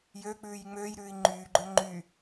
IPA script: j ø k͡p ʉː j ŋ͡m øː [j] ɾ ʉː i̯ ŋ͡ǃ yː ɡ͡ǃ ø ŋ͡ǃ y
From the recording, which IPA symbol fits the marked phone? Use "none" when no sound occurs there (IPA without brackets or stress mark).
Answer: j